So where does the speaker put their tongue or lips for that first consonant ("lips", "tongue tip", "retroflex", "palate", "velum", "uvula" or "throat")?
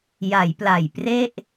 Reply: palate